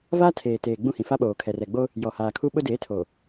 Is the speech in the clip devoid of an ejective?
yes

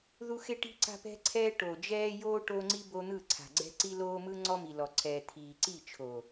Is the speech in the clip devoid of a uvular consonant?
yes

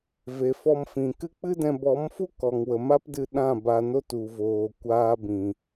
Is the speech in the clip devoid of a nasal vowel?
no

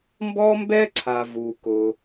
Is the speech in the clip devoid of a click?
no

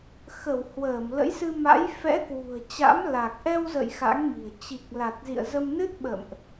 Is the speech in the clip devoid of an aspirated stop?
yes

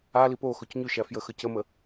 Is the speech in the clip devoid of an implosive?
yes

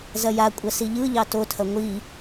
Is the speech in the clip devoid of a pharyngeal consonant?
yes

